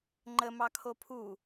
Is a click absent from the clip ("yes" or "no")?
no